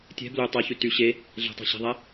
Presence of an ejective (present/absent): absent